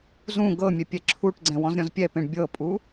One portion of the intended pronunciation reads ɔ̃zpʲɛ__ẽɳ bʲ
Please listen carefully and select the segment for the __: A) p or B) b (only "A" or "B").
A